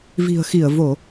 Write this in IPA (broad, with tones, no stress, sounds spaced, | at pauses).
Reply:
v i̤˨˩ ə̯ x i˧˩ ə̯ v o˧˩˨